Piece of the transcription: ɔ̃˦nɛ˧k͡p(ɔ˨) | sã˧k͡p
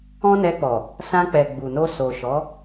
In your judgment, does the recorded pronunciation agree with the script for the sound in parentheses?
yes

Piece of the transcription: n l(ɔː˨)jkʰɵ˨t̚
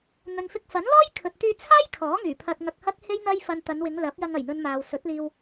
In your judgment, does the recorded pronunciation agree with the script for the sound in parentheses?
no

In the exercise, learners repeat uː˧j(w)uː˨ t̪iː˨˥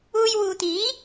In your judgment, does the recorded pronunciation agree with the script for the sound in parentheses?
yes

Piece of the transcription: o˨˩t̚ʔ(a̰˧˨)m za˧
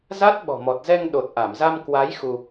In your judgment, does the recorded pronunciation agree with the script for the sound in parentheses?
no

